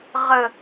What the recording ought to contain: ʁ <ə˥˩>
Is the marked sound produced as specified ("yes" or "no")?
no